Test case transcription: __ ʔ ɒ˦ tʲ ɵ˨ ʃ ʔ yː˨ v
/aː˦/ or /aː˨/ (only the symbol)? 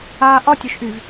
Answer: aː˨